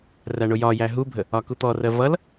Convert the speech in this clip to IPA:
ræɳʊjɒjæ ɦubʱə | ɒkut̪ɔrɜ vʌl

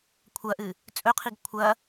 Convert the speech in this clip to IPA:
kʷʰɐʔɨ | t͡sʼɵqʰiɡ kʷʰɐ

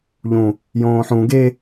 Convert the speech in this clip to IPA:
ʎũ | jõːħũ ɡe

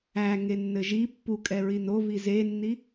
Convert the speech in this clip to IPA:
æŋe nːɘʒi pːukʼɛ ɹinovi zenːi

